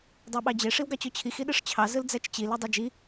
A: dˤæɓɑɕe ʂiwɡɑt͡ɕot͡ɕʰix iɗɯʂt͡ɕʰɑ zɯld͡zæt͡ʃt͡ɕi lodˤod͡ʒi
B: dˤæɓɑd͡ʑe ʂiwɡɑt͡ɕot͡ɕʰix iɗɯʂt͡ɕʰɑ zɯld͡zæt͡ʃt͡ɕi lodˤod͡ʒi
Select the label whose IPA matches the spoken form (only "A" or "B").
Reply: B